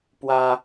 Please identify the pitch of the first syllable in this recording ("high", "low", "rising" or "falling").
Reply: high